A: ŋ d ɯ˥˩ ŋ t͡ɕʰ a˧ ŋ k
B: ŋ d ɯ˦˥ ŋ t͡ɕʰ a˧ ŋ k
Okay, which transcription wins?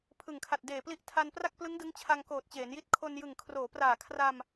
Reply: B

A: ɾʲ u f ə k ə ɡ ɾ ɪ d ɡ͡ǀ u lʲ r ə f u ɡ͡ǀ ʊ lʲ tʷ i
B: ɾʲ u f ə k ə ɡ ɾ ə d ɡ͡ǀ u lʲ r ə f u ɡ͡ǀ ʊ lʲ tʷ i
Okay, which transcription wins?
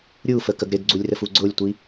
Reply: A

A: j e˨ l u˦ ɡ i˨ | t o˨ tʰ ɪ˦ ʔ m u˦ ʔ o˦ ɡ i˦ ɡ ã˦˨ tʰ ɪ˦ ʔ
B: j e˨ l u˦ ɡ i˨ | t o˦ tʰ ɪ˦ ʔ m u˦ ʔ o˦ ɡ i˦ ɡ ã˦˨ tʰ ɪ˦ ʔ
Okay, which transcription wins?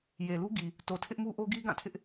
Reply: A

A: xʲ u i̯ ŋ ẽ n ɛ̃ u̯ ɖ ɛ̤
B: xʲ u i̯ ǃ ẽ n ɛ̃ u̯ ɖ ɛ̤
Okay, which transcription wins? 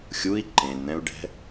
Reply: B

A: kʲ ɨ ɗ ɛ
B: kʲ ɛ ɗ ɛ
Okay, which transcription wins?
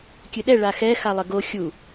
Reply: A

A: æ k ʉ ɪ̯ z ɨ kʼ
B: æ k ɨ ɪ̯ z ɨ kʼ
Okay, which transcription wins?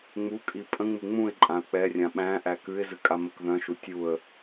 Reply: A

